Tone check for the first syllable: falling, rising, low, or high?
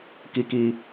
low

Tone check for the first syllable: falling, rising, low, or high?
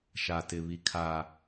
low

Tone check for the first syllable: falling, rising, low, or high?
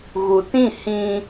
low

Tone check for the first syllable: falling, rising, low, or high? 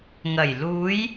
low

